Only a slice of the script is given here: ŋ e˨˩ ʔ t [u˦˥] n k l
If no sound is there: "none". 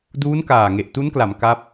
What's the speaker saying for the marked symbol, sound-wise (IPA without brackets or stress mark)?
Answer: u˦˥